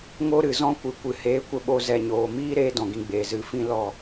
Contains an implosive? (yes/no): yes